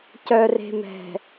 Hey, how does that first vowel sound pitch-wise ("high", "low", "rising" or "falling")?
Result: low